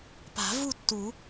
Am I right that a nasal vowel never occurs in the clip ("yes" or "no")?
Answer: yes